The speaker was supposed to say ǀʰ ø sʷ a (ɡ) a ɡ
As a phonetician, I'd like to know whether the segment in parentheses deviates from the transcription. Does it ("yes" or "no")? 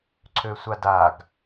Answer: yes